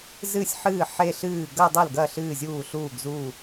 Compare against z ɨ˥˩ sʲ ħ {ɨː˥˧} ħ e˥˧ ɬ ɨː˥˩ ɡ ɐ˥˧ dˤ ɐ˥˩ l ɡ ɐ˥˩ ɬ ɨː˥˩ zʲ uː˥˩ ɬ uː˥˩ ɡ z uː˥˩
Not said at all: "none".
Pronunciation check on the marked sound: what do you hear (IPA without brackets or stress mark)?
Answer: ɨː˥˩